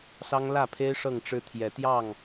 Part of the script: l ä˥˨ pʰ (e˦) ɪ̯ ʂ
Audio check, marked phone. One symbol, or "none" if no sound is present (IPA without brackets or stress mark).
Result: e˦